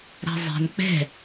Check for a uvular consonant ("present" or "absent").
absent